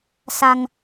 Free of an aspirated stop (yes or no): yes